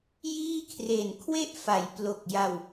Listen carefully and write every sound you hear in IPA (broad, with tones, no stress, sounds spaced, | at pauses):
j iː˥˩ kʰ r e˨˩ n kʰ w e˥˩ ʔ f a˩˦ j p l o˨˩ k̚ j a˧ w